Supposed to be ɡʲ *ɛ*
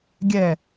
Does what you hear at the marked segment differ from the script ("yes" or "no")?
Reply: no